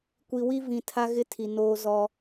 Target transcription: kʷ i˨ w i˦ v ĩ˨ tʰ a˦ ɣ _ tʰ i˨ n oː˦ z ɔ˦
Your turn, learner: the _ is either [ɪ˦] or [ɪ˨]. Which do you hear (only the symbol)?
ɪ˦